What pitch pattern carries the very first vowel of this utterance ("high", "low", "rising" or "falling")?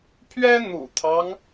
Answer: high